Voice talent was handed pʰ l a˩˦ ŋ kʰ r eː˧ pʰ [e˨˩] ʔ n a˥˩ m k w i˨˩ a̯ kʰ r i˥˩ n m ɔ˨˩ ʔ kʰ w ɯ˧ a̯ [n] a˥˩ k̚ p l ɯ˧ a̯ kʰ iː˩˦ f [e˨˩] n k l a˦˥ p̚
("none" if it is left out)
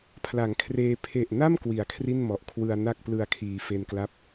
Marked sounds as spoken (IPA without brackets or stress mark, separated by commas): e˨˩, n, e˧